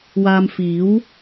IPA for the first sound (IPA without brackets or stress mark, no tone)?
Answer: w